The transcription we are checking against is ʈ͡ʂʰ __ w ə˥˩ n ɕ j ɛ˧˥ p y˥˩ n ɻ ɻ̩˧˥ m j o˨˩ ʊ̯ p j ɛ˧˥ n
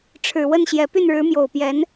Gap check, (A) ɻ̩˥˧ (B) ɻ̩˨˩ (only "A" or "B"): B